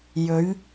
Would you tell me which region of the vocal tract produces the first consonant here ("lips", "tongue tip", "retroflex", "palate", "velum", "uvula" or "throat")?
palate